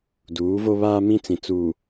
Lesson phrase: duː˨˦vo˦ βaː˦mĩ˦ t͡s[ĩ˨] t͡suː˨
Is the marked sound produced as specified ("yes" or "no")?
yes